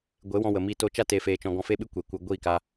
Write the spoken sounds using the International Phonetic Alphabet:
ɡʷ e˨˦ w ɔ̃˧ w ə˨ m iː˧ t o˧ t͡ʃ a˧ t eː˨ f eː˨ t͡ʃ ɔ̃˨ ɡ ɔ̃˧ f e˦ ɓ ɨ˦ kʷ e˨ kʷ ɨ˨ ɡʷ iː˦˨ k a˧

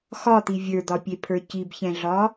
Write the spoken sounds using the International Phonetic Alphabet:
x ɒ t̪ i vʲ ə˞ d̪ ɒ pʲ e pʰ ə˞ c i b ç ɛ̃ ɮ ɒ

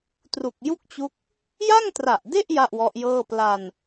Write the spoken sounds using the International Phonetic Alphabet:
t r u˨˩ k̚ j u˥˩ k̚ t͡ɕ u˦˥ k̚ | j a˥˩ ŋ t r a˨˩ ʔ d e˥˩ ʔ j a˥˩ ʔ w ɔ˦˥ ʔ j ɤː˥˩ p l a˧ n

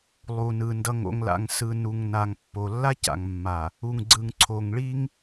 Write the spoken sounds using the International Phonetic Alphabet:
lˠ u˨ n ɯ˨ n d ʌ˨ ŋ o̰˨ ŋ l a̰˨ ŋ s ɯ˨ n u˨ ŋ n a˨ ŋ pː o˨ lː a˦ c a̰˨ ŋ mː a˨ | u˨ ŋ ɡ͡ǀ ɯ˨ ŋ ǀʰ o˨ ŋ ɭ i˦ ŋ

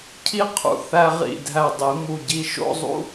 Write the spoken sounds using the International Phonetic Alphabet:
cʰ i˥ qʰ ṵ˧ θ æ˧ ʁ ḭ˧˩ dʱ æ˧˩ dˤ i˩˧ m u˧˩ ɟ i˧ ʃ o̰˥˧ zˤ ṵ˥

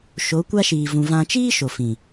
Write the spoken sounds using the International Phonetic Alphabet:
ʃ o˨˦ kʷ a˦ ʃ iː˨ v ũ˨ v ã˧ t͡ʃ iː˦ ʃ o˨ f ĩ˨

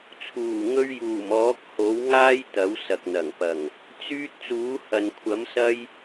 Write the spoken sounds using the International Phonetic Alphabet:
t͡sʰ uː˨˩ ŋ ɵ˧ ɥ j uː˨˩ m ɔː˨˥ k̚ h o˨˥ w ŋ aː˥ j t̪ ɐ˨˥ w s ɐ˨ k̚ n̪ ɐ˨˩ ŋ p ɐ˨˩ ŋ | t͡s yː˧ t̚ t͡s uː˨˥ h ɐ˨ n kʷʰ ɐ˨˥ m s ɐ˧ j

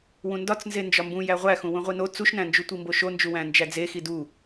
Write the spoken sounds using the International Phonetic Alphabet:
w ũ n d ɒ t͡s n z e n d͡ʒ ɒ m b ũ j æ ʁʷ æ x ũ w ũ ʁʷ i n o t͡s u ʃ n æ̃ n d͡ʒ u tʷ i m b o ʃ o n d͡ʒ u w æ̃ n d͡ʒ æ d͡z e x i d u

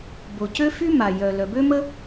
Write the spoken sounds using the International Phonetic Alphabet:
b o˩ c ø˥ f y˥ m a˩ j œ˩ l œ˩ b ø˥ m ə˥

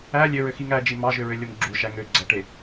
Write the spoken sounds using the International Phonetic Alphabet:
æ lʲ ø ɹ ø x i ŋ æ d͡ʒ i m ɑ ʒ ø ɹ ø lʲ o m ɡ͡ǁ u ʃ æ ŋ ø ɡ͡ǀ æ ʈ e

